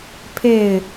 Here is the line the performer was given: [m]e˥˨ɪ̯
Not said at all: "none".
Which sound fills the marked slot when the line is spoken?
pʰ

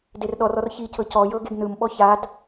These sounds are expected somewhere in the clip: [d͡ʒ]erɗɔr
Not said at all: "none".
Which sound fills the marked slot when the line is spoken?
d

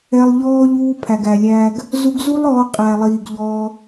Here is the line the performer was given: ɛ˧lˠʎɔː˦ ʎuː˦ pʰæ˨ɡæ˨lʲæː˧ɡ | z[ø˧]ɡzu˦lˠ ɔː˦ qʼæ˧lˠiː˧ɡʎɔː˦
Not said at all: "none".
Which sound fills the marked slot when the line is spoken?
u˧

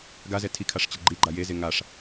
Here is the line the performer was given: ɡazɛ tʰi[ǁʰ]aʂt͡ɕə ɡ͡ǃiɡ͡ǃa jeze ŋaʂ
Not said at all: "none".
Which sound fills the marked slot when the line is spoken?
kʰ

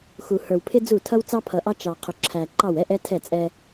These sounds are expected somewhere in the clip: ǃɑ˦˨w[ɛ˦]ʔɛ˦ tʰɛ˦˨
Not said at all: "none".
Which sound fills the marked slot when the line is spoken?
ɛ˦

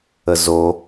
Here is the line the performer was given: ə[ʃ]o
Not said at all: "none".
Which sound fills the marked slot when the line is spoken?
z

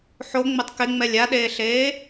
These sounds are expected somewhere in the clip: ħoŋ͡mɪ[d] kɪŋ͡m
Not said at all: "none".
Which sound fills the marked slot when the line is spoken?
tˤ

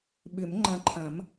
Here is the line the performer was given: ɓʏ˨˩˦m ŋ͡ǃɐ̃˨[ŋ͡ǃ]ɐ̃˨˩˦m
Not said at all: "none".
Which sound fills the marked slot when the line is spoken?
ǃʰ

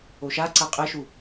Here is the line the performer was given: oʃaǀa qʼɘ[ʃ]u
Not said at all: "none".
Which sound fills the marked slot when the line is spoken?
ʃ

